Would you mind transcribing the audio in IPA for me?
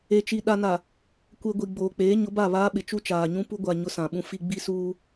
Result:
e˨t͡ʃi˨ ɗa˨na˨ | kʷe˨ ɡʷi˨ɡ͡boː˨k͡peː˨˦ ɲʊ˨˦ba˦˨ βaː˦ɓɪ˨ t͡ʃu˦t͡ʃaː˨ɲũ˦ pu˦ɡʷa˨ ɲʊ˦sã˨ɓũ˦ fi˦ ɡ͡bi˦suː˦

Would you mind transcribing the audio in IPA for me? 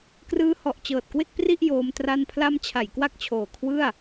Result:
krɯː˦˥hɔ˨˩ʔ t͡ɕɤː˨˩t̚kwe˥˩k̚pri˥˩ʔ joː˧m tra˧npʰla˦˥m t͡ɕʰa˩˦jkwa˥˩k̚t͡ɕʰoː˨˩ kʰwɯ˥˩a̯

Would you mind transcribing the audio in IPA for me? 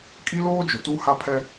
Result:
kʼi˦loː˦d͡ʒʊ˨ tu˦ha˦pʰɛ˦

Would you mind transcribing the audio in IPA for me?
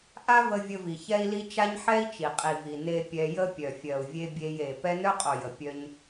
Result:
ʔa˦və˧ vʲə˧vi˨ çɛ˧i̯li˧ t͡ʃa˦ɲħɛ˦i̯ t͡ʃi˨qʼi˨vi˨ ne˧ pʲɛ˧jə˦ pʲœ˨fʲɜ˨u̯vʲe˧ bʲe˧je˨ pɛ˦ nœ˦qʼo˨jə˨ pʲœ˧ɲ

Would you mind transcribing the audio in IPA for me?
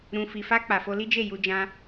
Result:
ɾũ˨fi˨fa˧ k͡pa˨fo˧li˦d͡ʒe˦˨ ju˧d͡ʒã˧

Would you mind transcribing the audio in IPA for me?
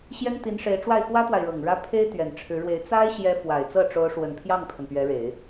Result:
ɕjɛ˥nt̪i˧˥nʂe˧˥ɪ̯ ʈ͡ʂwa˥˩ɪ̯xwä˥t̪wa˨ɪ̯ɻɤ˨˩ŋ ɻä˥ pʰe˥ɪ̯ t̪ɥɛ˨˩nʈ͡ʂʰɻ̩˧˥ɻwe˧˥ɪ̯ t͡sa˥ɪ̯ɕjɛ˧˥ fwa˨˩ɪ̯t͡sɤ˥˩ ʈ͡ʂo˧˥ʊ̯ ʂwə˨˩npʰjɑ˥˩ŋpʰə˩n pɥɛ˧˥ɻe˨˩˦ɪ̯

